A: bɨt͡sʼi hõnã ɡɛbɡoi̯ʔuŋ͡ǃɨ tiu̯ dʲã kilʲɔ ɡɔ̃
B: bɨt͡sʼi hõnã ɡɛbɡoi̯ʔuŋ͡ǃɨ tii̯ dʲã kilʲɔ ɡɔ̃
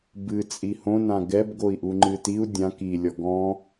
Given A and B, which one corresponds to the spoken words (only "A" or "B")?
A